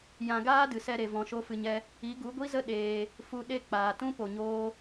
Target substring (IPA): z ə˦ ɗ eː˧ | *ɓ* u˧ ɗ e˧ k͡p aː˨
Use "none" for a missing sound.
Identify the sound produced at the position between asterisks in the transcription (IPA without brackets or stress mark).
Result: f